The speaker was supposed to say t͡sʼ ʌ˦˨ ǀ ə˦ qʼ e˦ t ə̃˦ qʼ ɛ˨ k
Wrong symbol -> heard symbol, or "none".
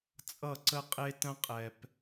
k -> p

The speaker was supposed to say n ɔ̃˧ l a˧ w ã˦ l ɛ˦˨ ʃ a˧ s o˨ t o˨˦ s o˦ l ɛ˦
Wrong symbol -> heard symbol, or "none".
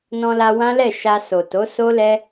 none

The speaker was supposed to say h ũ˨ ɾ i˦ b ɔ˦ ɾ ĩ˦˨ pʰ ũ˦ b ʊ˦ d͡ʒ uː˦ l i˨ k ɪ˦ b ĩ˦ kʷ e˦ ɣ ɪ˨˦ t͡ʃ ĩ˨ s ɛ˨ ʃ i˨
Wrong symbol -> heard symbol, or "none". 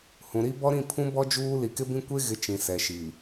ʊ˦ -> ɔ˦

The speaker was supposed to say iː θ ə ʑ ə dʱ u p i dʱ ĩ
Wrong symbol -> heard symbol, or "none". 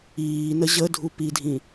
θ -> n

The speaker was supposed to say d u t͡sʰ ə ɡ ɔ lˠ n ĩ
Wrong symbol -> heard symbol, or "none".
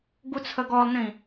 d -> ɡ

